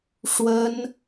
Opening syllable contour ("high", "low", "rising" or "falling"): high